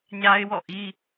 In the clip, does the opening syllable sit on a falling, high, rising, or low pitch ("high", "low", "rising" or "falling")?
high